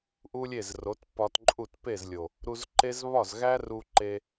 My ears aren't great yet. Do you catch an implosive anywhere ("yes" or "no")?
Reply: no